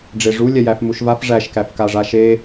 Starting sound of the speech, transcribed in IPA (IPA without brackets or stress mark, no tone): ɖ͡ʐ